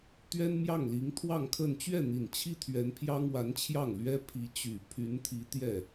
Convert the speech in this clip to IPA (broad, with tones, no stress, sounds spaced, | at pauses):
t̪ ɥ ɛ˥ n m j ɑ˥˩ ŋ l i˧˥ ŋ t̪ʰ w ɑ˥˧ ŋ kʰ ə˥˧ n t͡ɕ ɥ ɛ˥˩ n̪ i˨˩ n t͡ɕʰ i˥ t̪ʰ ɥ ɛ˧˥ n pʰ j ɑ˥ ŋ w a˧˥ n t͡ɕʰ j ɑ˥˩ ŋ l ɥ ɛ˥ pʰ i˧˥ t͡ɕ y˨˩ pʰ y˧˥ n t̪ʰ i˧˥ t̪ j ɛ˥˩